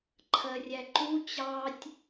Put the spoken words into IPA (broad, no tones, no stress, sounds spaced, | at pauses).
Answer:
ǃʰ ɜ rʲ æ ǃ u t͡ɕ ɑ tʲ